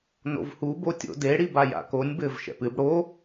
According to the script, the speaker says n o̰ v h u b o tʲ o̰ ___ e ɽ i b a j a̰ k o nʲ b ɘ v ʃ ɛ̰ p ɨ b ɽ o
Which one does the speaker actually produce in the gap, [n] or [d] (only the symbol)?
d